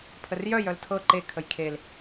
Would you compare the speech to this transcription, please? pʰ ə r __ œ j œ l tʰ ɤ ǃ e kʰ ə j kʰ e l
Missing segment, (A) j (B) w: A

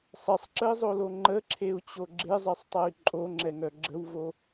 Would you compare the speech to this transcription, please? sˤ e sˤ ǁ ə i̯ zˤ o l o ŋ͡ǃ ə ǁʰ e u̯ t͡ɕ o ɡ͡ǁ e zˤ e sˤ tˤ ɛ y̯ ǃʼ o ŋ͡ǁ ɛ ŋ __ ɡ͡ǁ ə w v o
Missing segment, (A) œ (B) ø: A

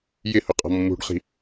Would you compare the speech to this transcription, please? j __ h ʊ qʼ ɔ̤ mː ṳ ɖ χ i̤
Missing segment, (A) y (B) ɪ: B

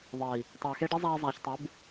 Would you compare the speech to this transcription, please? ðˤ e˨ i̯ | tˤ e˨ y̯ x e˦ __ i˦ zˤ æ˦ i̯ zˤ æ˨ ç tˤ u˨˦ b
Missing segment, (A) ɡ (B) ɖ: B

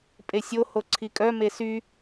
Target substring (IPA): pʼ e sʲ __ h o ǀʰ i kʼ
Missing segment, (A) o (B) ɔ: A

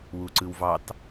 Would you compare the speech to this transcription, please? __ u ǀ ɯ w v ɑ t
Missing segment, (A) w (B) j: A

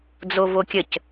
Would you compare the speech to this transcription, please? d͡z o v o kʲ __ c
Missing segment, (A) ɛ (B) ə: B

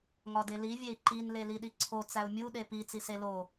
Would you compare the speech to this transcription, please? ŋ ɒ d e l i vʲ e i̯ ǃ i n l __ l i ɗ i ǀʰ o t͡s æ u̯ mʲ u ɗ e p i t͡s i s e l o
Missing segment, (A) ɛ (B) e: B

